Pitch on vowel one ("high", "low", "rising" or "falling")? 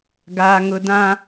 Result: high